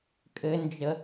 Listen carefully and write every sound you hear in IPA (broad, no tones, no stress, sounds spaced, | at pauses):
kʼ ɘ n d͡ʒ ə